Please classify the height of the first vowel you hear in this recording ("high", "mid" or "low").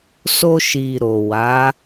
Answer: mid